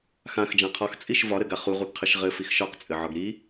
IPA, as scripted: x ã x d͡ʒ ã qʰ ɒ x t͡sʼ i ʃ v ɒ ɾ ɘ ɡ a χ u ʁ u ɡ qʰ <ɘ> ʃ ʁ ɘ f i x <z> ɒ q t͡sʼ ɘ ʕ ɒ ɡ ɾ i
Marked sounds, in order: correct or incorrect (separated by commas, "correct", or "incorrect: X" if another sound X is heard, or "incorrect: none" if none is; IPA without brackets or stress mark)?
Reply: correct, incorrect: ʃ